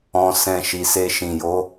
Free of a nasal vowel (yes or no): no